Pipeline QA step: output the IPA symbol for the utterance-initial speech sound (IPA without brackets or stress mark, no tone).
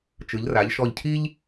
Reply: t͡ʃ